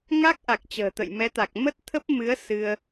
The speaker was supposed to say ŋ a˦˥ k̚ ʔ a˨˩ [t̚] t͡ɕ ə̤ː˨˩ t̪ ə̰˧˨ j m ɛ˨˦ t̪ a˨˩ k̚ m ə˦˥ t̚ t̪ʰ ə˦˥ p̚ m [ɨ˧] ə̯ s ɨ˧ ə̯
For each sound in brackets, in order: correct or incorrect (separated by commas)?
incorrect, incorrect